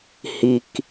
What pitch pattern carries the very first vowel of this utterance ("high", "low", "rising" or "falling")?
low